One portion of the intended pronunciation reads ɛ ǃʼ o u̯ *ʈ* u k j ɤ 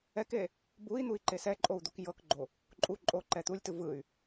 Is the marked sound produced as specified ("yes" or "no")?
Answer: no